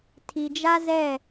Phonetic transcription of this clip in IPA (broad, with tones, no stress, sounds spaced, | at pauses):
tʰ i˨ d͡ʒ a˦ z ɛ˦˨